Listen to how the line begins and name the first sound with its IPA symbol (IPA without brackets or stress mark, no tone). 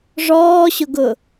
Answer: ʐ